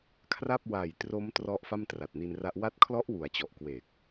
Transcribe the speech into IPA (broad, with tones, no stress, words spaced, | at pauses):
kʰra˥˩p̚ wa˨˩jtro˦˥m trɔ˦˥ʔ fa˥˩mtra˨˩t̚ni˧nra˦˥ʔ wa˦˥t̚kʰlɔ˦˥ʔ wu˩˦a̯t͡ɕɔ˨˩ʔ kweː˨˩k̚